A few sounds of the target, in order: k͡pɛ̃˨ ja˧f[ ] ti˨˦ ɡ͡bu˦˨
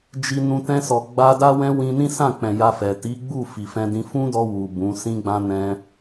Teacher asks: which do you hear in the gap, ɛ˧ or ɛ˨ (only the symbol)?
ɛ˨